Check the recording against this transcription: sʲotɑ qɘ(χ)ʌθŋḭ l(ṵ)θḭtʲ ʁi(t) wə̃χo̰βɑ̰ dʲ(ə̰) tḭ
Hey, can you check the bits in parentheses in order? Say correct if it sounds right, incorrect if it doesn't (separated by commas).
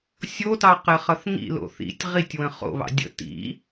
correct, incorrect, incorrect, correct